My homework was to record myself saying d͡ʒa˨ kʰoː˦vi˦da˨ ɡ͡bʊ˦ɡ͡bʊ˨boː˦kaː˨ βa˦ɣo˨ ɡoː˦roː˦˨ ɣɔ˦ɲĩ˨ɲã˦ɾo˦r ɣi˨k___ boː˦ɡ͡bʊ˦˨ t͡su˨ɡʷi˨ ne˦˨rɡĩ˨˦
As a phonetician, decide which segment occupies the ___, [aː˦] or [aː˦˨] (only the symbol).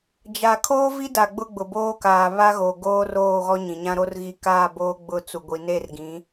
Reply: aː˦˨